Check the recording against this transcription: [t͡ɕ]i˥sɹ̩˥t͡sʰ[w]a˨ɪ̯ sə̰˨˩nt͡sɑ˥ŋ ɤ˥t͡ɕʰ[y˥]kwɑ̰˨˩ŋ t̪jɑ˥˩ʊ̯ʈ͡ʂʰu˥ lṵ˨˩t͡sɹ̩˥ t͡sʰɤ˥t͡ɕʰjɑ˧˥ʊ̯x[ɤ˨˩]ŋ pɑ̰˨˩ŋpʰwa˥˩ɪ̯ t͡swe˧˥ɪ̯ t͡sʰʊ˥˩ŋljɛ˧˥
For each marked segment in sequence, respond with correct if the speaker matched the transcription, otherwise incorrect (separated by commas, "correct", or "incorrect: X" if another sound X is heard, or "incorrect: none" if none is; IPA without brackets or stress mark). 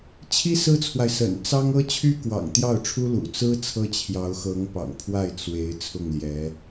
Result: incorrect: t͡ɕʰ, correct, correct, incorrect: ɤ˧˥